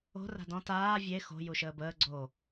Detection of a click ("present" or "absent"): present